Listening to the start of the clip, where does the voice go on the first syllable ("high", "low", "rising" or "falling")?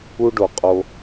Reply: high